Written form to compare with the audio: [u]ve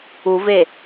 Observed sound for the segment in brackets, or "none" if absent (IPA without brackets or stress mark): u